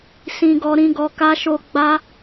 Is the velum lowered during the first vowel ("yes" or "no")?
yes